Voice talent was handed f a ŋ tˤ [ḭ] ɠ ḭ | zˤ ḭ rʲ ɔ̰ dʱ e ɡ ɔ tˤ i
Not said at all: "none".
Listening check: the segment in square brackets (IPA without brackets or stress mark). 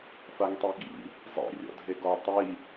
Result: i